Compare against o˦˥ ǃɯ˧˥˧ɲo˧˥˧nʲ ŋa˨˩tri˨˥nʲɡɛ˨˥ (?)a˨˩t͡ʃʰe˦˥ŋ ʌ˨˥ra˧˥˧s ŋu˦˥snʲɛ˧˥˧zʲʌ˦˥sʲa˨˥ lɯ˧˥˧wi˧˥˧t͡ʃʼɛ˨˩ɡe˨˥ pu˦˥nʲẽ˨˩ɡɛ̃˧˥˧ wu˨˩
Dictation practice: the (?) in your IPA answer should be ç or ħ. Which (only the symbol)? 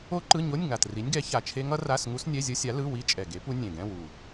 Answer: ç